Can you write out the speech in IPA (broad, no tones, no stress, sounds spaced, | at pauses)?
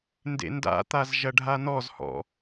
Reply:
n d ḛ n d a̰ t̪ a z ʒ ɐ ɖʱ a n ɔ z h ɔ̰